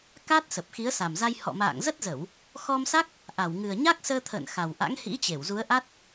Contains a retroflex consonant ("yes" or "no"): no